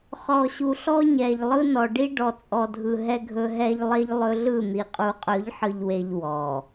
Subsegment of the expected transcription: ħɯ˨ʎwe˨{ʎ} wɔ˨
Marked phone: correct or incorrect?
correct